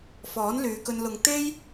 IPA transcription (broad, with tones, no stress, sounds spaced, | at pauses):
f ɔː˨˥ n l yː˨˧ k ɵ˧ n l ʊ˨ ŋ t̪ e˥ j